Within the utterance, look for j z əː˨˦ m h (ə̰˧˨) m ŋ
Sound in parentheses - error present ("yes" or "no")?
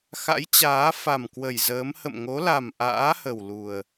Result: no